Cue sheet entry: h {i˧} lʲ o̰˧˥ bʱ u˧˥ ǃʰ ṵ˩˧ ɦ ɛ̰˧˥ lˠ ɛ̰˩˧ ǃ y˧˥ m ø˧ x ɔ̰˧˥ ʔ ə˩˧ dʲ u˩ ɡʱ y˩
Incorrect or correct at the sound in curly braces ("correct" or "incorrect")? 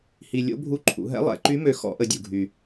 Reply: correct